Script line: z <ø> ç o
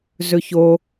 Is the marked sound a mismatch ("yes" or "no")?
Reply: yes